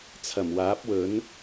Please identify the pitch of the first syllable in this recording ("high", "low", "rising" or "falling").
low